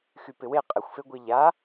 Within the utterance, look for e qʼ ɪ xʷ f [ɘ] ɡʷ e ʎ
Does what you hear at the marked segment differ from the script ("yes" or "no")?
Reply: yes